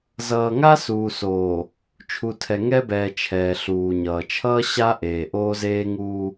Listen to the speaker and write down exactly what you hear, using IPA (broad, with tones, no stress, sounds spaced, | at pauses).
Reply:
z ʌː˨ ŋ a˦ s uː˨ s oː˨ | t͡ʃʰ u˨ tʰ ɛ˨ ŋ ɛ˦ b ɛː˨ t͡ʃʰ ɛː˨ ɬ uː˨ ɲ ʌː˨ t͡ʃʰ ʌː˦ ɕ a˦ ʔ eː˨ ʔ oː˦ z eː˦ ŋ uː˦